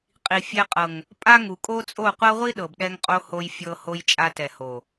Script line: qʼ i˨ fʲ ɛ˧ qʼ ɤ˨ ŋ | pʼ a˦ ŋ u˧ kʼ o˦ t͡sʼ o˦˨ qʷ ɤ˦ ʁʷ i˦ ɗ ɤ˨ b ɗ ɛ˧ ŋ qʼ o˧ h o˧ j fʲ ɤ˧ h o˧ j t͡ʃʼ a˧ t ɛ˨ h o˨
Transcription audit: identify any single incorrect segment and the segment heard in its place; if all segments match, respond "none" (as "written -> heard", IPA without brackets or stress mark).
u˧ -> u˨